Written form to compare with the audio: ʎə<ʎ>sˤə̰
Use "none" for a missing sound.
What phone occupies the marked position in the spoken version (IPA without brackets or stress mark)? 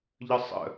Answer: none